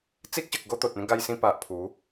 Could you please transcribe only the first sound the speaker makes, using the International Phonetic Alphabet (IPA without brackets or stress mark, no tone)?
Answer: t͡s